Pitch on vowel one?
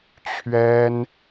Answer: high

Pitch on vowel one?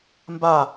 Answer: falling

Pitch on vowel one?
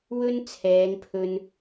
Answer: high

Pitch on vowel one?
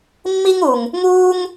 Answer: high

